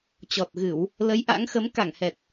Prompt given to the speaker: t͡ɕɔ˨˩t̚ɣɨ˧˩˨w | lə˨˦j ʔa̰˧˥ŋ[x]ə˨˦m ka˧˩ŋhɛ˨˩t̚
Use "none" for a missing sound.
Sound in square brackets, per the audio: x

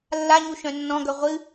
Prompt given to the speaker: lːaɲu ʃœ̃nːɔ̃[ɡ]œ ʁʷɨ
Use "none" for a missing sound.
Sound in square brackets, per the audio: ɡ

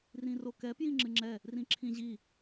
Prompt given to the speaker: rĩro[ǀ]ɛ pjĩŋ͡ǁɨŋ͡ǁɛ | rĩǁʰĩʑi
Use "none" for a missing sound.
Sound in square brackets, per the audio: k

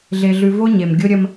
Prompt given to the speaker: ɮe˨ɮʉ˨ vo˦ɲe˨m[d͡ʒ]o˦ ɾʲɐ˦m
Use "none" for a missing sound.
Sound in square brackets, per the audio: ɡʲ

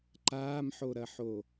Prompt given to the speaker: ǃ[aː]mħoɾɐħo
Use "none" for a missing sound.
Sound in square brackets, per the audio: aː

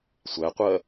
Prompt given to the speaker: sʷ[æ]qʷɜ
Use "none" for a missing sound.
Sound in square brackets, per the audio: æ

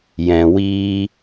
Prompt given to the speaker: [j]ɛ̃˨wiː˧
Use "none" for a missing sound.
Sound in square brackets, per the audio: j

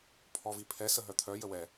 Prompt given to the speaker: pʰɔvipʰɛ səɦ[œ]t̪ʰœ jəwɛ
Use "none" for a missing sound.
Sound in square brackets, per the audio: œ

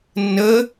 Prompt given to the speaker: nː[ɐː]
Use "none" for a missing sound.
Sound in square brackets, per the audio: əː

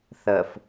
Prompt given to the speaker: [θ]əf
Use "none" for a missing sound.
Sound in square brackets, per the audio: θ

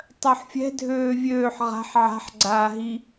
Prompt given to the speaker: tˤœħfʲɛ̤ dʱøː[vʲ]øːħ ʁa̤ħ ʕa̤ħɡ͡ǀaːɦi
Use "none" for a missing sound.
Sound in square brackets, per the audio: vʲ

